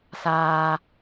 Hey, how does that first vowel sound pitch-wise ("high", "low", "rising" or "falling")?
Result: low